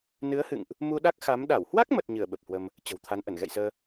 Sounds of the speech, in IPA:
nɨ˨˦ə̯hɨ̰˧˨ŋʔ | mu˧ɗa˦˥k̚xa˨˦m ɗa˧˩whwa˦˥k̚mə˨˩t̚ ɲɨ˧˩ə̯ ɓə˨˩p̚hwə˧m | t͡ɕə̤˨˩wt̪ʰa˨˦nʔə˧˩n ɣɛ̰˧˨jsəː˧

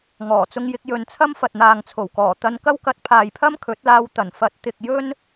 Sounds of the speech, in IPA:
ŋɔː˨˩t͡sʊ˧ŋjɪ˧k̚ jɵ˨nt͡sʰɐ˥m fɐ˨t̚n̪aː˨ŋt͡sʰo˨˩wkɔː˨˩ t̪ɐ˧nkɐ˥wkɐ˧t̚ pʰaː˨jpʰɐ˥m kʰɵ˨˥t̚laː˧wt̪ɐ˨˩nfɐ˨˥t̚ t̪ɪ˨k̚ jɵ˥n

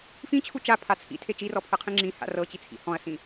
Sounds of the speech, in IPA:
fĩt͡ɕʰu t͡ʃapʰa t͡sʰḭtʰe t͡ʃirɔpʰɤqʰĩ ŋ͡ǁĩha̰ rɤt͡ɕit͡sʰḭ hɔ̃ɐ̯sĩ

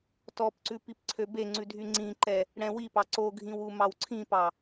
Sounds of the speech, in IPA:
tɔpǀʉ pipǀʰøbeŋ͡ǀʉ dʱyŋ͡ǀĩǃɛ | ɽɛ̃wipɑ ǀoɡʱĩw umɑwǀʰĩpɑ

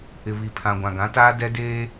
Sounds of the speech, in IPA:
ɪ˨βi˨ pʰã˨ɡʷã˨ɡã˨˦taː˦ dɛ˦ deː˦

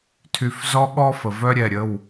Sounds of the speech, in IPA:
tʰy˧˩fzɔ˥ ɠɔ˥fə˩vœ˥ɾʲɛ˧˩ ɾʲə˩˧˩w

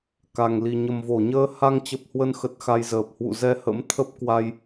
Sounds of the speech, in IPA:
ka˨˩ŋli˨˩ ɲə˨˩mvo˧˩ɲəː˧ ha˧ŋt͡ɕə˨˩p̚hwə˧nxə˨˩t̚ xa˧jzəː˨˩p̚ hwṵ˧˨zɛ˧ hə̰˧˥mt̪ʰə˦˥p̚kwa˧j

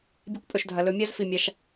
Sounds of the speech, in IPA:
bʲe˧kʷpʼɵ˨ʃdʱɐ˨ lɵ˨ mʲa˦zfi˧mʲa˧ʃ

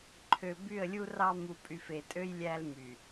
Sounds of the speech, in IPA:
ǃʰø˨by˦˨ə̯lʲu˦rɑ˦ mu˨pʼy˨fe˨tʼø˦j lʲæ˦lmy˨

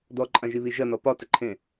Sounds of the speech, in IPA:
dɔǃʼãʒiβi ʒɐnɔ pɒtəǃʰẽ

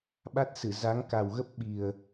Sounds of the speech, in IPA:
ɓa˦˥t̚sɨ˧˩ za˨˦ŋka˨˩wɣə˦˥p̚ ɓi˨˩ə̯

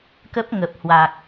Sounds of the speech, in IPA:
kə˦˥p̚ŋə˨˩p̚hwa˨˩k̚

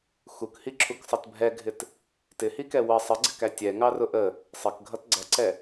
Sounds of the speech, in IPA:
xukhiǁʰuksˤʌt bʱɛɡʱɪt | tɪhikɛ wə sˤəɡ͡ǀɪkæ tʲɛŋɑrʊ ʔə | sˤəkɡʱʌt ɡ͡ǀʌǀɛ

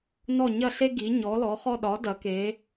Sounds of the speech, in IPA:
nɔ˥˩ ɲɐ˥˩ɬe˥ ɡi˩˥ ɲɔ˩˥lɔ˩˥χɔ˥˧ ɗɒ˩˥ dɐ˩˥ke˩˥

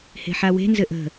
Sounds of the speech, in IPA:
he̤ħawe̤ nzɘʔə̤

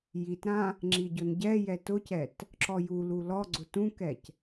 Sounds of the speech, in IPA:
jitɾã | ŋ͡ǁiɟʊnɟɛjɛ tʊcɛt | ǁɔjulu lɔɡ͡ǀʊ tũkɛc

